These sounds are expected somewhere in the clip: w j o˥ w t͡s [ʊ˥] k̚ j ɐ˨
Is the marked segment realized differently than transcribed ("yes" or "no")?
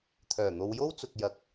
yes